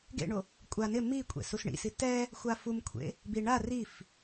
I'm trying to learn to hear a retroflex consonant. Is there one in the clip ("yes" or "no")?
yes